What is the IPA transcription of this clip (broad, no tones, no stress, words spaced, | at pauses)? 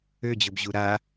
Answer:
ød͡ʑɵbʑu ɾa